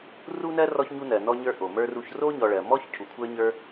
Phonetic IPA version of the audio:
r u˥ n ɜ˥ r ɔ˦ ç ɲ u˦ n ɜ˩ n ɔ˦ ɲ ə˞˦ ʔ o˩ m ə˞˥ r u˦ ç r o˥ ɲ ɔ˨ ɭ ɜ˩ m ɔ˥ ç cʰ u˩ kʷʰ ə˞˦ ɲ ə˞˦

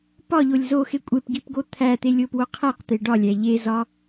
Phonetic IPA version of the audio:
p ɒ ʎ o lʲ z o x e kʷʼ e p ɡ i p ɡ o t̪ʰ æ t̪ e lʲ o p w o qʰ æ q t̪ e ɖ ɒ lʲ æ ʎ e z ɒ

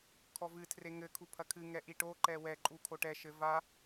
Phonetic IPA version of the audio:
kʰ ɔ v ɨ tʰ r e ŋ ɘ kʰ u pʰ ɐ kʰ ɨ ŋ ɛ ʔ i ʈ o ǃ ɛ w ɛ ǃʼ u kʰ o ʈ ɛ ʃ ɘ v a

